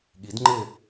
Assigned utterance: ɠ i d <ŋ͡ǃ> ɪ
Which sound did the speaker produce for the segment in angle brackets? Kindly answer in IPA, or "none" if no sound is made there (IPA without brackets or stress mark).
ŋ͡ǃ